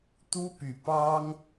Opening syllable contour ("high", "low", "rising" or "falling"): high